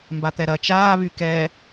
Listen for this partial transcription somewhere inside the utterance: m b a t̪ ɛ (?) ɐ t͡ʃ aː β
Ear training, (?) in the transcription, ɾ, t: ɾ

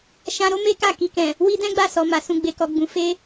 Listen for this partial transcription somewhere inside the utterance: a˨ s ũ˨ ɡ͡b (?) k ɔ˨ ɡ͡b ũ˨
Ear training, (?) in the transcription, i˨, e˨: e˨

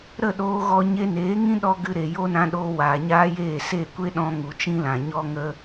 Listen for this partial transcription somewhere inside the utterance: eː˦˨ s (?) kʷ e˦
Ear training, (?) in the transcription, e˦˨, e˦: e˦˨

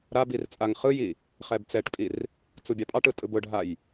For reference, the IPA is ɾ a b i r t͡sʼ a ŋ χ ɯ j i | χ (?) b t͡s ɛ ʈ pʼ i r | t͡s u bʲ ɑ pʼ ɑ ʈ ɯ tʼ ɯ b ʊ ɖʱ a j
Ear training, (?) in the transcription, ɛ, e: ɛ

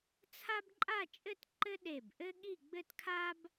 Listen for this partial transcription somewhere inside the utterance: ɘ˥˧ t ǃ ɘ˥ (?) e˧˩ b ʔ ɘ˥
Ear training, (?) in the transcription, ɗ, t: ɗ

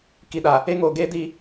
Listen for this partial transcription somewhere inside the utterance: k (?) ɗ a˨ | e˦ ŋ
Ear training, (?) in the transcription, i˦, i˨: i˨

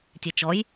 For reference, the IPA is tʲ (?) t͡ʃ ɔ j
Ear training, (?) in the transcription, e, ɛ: e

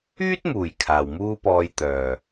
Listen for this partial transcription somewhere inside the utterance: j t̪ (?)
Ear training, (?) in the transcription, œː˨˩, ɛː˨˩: œː˨˩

